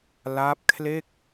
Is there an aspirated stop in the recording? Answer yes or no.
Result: yes